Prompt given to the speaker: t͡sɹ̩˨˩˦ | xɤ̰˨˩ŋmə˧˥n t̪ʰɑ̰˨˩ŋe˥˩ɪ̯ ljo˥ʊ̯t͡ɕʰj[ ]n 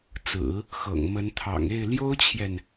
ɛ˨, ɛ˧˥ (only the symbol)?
ɛ˨